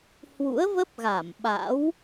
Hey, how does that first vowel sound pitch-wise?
rising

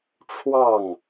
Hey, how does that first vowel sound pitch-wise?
falling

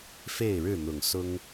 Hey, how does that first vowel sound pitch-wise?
falling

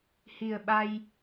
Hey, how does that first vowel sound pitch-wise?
low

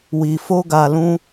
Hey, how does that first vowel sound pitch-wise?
low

